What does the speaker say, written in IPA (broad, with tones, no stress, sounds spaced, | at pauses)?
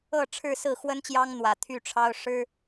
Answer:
ɤ˥˨ ʈ͡ʂʰ ɻ̩˥˨ s ɹ̩˥˨ x w ə˦ n t͡ɕ j ɑ˦ ŋ n̪ w ä˨˩ t̪ʰ y˥˨ ʈ͡ʂʰ ɑ˦ ʊ̯ ʂ ɻ̩˦